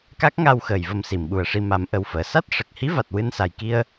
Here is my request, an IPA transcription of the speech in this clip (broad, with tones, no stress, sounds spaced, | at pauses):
k a˦˥ k̚ ŋ a˧ w x əː˨˩ j v ə˧ m s i˨˩˨ m ɓ u˨˩ ə̯ ʂ i˧ m a˨˩˦ m ʔ ə˨˩ w f əː˨˩˨ s a˦˥ t̚ ʂ ə˨˩ k̚ h i˧˥ v a˨˩ t̚ w ɨ˧ n s a˨˩ j k i˧ ə̯